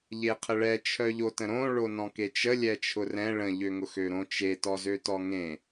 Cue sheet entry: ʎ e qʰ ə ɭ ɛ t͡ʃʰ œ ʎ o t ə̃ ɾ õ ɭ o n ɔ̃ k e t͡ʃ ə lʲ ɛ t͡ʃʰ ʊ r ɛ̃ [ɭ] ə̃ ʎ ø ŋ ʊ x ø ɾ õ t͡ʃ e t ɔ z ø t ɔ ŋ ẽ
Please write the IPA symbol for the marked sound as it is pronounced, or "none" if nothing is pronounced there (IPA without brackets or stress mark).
ɭ